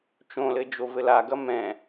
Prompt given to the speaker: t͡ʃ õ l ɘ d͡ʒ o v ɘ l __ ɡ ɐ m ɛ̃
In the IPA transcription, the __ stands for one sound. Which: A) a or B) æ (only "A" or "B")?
A